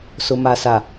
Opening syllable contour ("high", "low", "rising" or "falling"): low